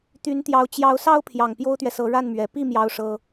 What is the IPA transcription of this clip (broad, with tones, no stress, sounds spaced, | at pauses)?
t̪ y˧˥ n t̪ j ɑ˧˥ ʊ̯ t͡ɕ j ɑ˧˥ ʊ̯ s ɑ˥ ʊ̯ pʰ j ɑ˨˩ ŋ p j o˥ ʊ̯ t̪ ɥ ɛ˨ s ɤ˧˥ ɻ a˥˩ n m ɥ ɛ˨˩ p i˥˩ m j ɑ˥ ʊ̯ ʂ ɤ˥